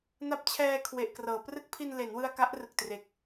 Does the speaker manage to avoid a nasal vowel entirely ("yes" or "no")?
yes